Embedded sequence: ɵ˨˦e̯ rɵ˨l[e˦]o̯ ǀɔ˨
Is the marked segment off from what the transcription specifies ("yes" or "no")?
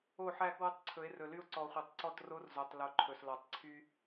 yes